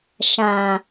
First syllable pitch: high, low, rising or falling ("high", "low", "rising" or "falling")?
low